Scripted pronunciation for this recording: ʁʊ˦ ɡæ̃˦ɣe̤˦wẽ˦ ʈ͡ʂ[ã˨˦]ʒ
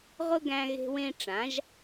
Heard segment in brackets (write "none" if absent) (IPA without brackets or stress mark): ã˨˦